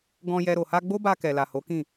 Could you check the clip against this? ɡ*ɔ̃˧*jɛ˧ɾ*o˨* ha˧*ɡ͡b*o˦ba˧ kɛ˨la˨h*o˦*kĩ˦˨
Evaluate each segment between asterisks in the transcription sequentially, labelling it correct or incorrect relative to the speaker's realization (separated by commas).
correct, correct, correct, incorrect